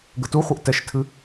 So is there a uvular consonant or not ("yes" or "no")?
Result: yes